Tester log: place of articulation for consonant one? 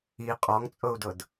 uvular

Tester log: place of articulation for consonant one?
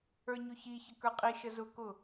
palatal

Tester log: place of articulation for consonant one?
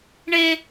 retroflex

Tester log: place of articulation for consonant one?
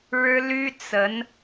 retroflex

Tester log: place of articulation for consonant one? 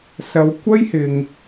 alveolar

